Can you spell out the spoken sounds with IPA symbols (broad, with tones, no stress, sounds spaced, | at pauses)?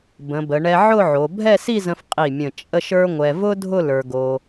b ə̃˩˧ b ə˩˧ ɳ ɛ˧ ʕ ʊ˥˧ ʕ o˩˧ bʱ ɛ˥˧ s i˥˧ z ə̃˧ f qʼ i˧˩ mʲ ə̃˧˩ t͡ʃʼ ə˥˧ ʃ ə˞˥ ŋʷ ɛ˧ v ʊ˥ dʱ ʊ˥˧ l ə˞˧ ɡ o˧